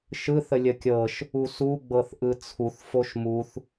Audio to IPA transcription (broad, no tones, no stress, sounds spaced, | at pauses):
ʃ ɯ θ ə lʲ ə kʲ ɤ ʃ | u s u ɡ͡b ɤ θ ʔ ɯ t͡sʰ u θ f o ʃ m u θ